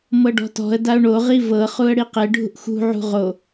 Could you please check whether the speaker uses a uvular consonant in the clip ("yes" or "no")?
yes